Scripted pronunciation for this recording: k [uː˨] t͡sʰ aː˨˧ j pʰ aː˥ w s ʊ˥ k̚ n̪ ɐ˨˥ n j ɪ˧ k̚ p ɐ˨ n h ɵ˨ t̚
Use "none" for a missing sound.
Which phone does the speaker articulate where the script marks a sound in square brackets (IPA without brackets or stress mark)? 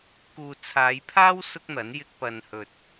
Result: uː˨